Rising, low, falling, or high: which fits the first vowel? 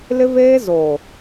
high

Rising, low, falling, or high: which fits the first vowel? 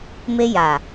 high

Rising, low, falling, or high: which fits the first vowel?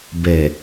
low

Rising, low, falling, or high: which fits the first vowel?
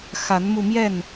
rising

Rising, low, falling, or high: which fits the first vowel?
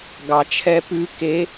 low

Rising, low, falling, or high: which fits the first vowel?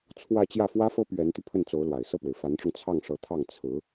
falling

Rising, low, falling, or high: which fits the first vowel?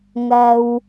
low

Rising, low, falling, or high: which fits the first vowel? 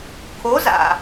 rising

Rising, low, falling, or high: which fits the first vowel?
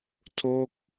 falling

